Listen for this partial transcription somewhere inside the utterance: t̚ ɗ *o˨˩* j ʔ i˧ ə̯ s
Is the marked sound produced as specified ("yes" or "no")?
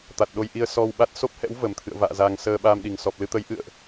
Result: no